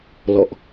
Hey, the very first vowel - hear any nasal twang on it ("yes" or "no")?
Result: no